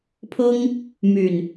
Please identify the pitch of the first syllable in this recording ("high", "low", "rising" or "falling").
high